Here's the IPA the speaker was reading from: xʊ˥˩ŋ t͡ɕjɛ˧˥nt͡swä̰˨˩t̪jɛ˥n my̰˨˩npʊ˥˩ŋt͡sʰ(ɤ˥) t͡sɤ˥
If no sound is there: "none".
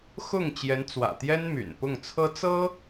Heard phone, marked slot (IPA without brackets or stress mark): ɤ˥